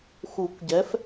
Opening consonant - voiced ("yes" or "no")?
no